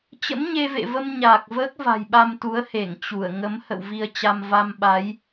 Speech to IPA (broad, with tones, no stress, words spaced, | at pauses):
t͡ɕə̰˧˥mɲe˧vḛ˧˨və˧m ɲaː˨˩k̚vəː˦˥k̚va̤˨˩jɓa˧m t̪u˨˦ə̯he˧˩ŋ t͡ɕu˧˩ə̯ ŋə˨˦mhə̰˧˨w vi˧ə̯t͡ɕa˧m va˧mɓa˨˦j